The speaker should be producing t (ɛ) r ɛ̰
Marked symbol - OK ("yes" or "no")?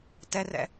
yes